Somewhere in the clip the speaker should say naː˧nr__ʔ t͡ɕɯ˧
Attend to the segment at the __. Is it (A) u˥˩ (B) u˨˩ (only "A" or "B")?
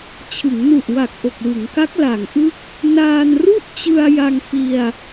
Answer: A